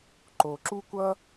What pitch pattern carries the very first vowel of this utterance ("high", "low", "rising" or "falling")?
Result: low